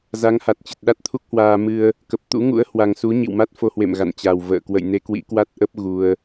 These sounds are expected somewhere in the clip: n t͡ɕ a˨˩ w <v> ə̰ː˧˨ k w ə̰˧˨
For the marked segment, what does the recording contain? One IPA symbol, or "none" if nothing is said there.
v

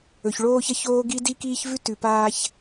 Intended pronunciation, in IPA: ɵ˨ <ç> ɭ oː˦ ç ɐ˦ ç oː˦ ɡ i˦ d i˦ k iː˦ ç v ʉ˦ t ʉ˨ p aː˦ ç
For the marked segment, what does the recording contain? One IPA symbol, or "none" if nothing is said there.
ç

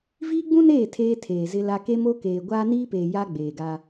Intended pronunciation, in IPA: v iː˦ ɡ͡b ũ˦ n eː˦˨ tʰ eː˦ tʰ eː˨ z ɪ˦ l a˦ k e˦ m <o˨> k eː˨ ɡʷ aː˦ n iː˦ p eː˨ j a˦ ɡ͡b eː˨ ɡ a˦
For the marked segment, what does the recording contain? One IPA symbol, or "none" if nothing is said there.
o˦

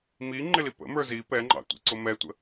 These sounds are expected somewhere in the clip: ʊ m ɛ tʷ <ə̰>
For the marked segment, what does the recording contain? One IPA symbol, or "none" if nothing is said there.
ə̰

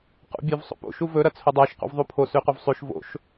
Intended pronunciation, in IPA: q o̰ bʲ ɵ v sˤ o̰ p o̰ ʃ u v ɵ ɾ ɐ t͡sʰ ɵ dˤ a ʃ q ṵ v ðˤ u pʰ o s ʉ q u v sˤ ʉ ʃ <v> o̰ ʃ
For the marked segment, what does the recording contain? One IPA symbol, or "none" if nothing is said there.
v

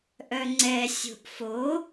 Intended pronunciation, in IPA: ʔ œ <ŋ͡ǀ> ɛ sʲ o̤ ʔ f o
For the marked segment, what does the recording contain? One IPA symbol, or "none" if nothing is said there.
ŋ͡ǀ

